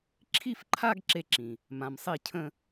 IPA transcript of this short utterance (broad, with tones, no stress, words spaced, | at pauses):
ǁʰi˥˧fǃʰa˥˧ɡ ǁe˥˧ǁĩ˨ | mã˨msˤi˥˧ cʰə̃˥˧